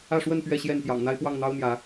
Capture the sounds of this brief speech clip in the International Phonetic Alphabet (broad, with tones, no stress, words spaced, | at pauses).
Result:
ä˥˨ ʂwə˥˨n pɥɛ˥˨ɕjɛ˥˨n pjɑ̰˨˩ŋn̪a˦ɪ̯ pwɑ˥˨ŋn̪ɑ˦ʊ̯n̪jä˨˦